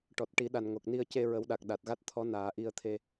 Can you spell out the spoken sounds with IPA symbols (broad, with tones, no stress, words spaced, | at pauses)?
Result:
ʈɔ˨˩t̚ʈi˨˩˦ɗa˨˩n ŋo˨˩k̚ni˧ə̯ ce˧ ɹə˨˩˦wɗa˨˩k̚ ɗa˨˩t̚ɣa˦˥t̚ t̪ʰɔ˧˥naː˨˩˦ ʔi˧ə̯t̪ʰe˧